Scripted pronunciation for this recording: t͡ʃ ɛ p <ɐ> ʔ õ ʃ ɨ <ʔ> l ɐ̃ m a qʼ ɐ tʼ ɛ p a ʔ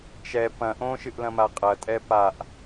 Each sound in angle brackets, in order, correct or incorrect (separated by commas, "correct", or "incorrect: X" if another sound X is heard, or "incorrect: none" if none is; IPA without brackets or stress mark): incorrect: ɐ̃, correct